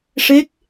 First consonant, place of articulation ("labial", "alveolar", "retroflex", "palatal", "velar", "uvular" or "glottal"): retroflex